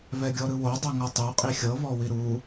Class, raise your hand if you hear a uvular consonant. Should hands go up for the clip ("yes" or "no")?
yes